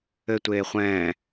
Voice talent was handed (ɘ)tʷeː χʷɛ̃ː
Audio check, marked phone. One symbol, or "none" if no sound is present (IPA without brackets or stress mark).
ɘ